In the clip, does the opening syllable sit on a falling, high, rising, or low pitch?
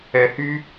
low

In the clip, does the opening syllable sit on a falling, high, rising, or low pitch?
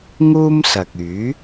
high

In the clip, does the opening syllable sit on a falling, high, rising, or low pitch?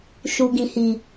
low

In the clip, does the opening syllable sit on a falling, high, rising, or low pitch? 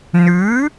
rising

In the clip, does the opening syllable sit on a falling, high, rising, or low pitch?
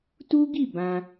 high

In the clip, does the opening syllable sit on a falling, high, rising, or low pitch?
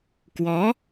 rising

